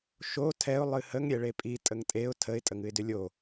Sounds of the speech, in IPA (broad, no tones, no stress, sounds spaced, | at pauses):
ʃ o tʰ ɛ ʊ̯ lˠ ɨ h ə ŋ ɾʲ ɛ ɭ e pʼ i tʼ ə ŋ tʼ e ʊ̯ tʰ ə ɪ̯ tʼ ə ŋ ɨ ɪ̯ d ʏ lʲ o